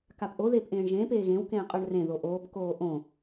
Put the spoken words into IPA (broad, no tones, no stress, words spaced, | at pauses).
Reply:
kapʔo ðeːpʔẽːɳʒẽːp eːɣẽw kẽːqʼə˞ɳrẽ ðoʔoːp koːʔõ